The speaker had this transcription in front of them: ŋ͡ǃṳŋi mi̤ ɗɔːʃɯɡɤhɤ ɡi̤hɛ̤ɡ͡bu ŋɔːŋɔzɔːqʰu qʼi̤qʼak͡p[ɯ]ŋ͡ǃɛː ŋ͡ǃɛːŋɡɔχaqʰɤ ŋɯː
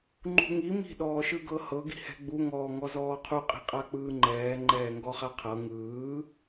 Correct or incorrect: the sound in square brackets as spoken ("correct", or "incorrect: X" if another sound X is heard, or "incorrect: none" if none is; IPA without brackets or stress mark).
incorrect: ɯː